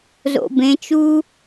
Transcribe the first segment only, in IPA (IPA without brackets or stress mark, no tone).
z